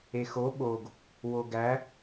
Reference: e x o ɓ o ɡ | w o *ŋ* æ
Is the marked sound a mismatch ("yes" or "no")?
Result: yes